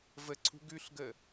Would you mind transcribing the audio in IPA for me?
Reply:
v ə ǀʰ ṳ ɡ ʉ ɬ ɡ ə

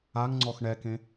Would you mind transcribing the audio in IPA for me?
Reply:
a ŋ ŋ͡ǀ ɔ x ɳ ɛ k ẽ

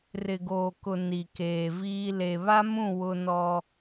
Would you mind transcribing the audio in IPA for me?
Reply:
r ɪ˨ ɡ oː˨ k ʊ˨ n i˨ k eː˨ v iː˦ l e˨ β a˦ m ũ˦˨ w ʊ˦ n ɔ˦

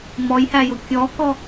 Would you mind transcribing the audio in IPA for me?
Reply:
m ɔ j h æ j ʊ kʲ ɔ k ɔ

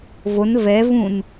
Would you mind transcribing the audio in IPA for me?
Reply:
v o n v ɛ v ũ n

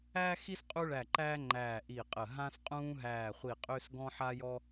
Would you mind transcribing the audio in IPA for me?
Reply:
æː˦ x i˦ s qʼ u˦ ɭ æ˧˩ ǃ æː˦ ŋ͡ǃ æː˧˩ ʔ i˧˩ qʼ ə˧˩ ɦ ã˦ s qʼ ũː˦ ɦ æː˧˩ χʷ i˧˩ qʼ ø˦ s ɡ ɔ̃˦ ħ a˦ j ɔ˦

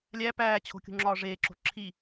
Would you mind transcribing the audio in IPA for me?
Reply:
lʲ æ p æː t͡ɕʰ o̤ kʲ ṳ ŋ͡ǁ ɒː ʐ eː ǁ o̤ ǁʰ i

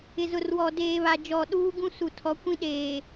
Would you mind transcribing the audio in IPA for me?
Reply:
ɪ˨ z ʊ˨ r w ɔ˨ d eː˨ β a˨ d͡ʒ ɔ˨ ɗ uː˦ ɡ ũ˦ s u˨ tʰ ɔ˨˦ kʷ ĩ˦ ɗ eː˨

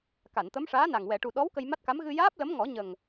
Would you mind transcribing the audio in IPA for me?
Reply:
k a˨˩˨ n t̪ ə˧˥ m ʂ aː˧˥ n a˨˩ ŋ w ɛ˨˩˨ ʈ u˨˩ ɗ ɔ˧˥ w k ə˧ j m a˦˥ t̚ k a˧˥ m ɣ ɨ˧ j aː˦˥ p̚ l ə˧˥ m ŋ ɔ˨˩˦ ɲ ə˨˩ ŋ

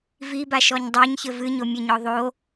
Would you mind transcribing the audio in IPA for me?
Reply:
v i b a ʃ ɔ ɲ dˤ a ɲ ç ɘ v ɨ ɲ o mʲ ɘ ɲ ɔ ðˤ o

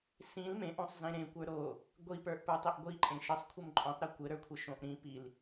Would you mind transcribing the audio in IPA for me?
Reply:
s ĩ l m ẽ ʔ õ sˤ z ẽ ɾ ẽ kʷ ə˞ ɾ o | ɡʷ i p ə˞ ʔ p ə˞ tˤ e ʔ ɡʷ i ǃʼ ẽ ʃ ɘ sˤ kʷʰ ɘ m ǃʼ õ tˤ ɾ e kʷ ɘ ɾ ə˞ kʷʰ ɘ ʃ õ ʔ ɾ ĩ p i l

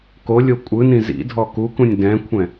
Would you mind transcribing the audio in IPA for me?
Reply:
k o lʲ o kʷʼ ɯ n ĩ z ḭ dʱ ɔ k u k ũ nʲ d ɛ̃ kʷʰ ɛ̃

